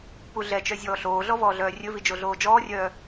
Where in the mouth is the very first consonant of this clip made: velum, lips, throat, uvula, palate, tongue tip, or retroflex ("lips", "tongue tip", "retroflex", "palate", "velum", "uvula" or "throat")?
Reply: lips